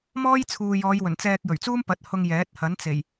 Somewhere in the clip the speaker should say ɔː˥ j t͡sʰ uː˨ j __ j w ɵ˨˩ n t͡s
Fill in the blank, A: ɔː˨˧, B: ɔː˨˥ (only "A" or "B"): A